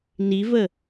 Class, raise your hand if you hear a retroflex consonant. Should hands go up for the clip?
no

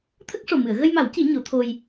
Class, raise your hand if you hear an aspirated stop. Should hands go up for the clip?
yes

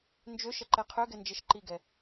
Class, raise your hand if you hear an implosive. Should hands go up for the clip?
no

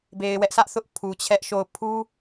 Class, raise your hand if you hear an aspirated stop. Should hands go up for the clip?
yes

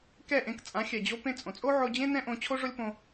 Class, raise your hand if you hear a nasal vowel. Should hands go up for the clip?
yes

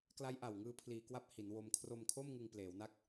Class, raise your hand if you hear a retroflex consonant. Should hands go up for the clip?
no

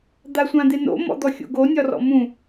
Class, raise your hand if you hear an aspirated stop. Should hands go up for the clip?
no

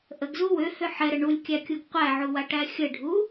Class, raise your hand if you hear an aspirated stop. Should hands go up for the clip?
no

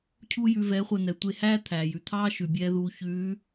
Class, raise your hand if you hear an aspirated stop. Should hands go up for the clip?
yes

